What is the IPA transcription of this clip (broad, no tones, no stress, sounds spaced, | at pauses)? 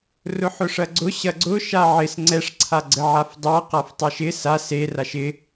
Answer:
r ʊ ħ ʊ ʂ ɐ ɡ͡ǀ ʊ ɕ ɐ ɡ͡ǀ ʊ ʃ a ʕ ɪ s ŋ͡ǀ ɛ ʂ ǀʰ a ɡ͡ǀ ə ʕ a f dˤ a q a f tˤ ɐ ʃ ɪ s a s e r a ʃ ɪ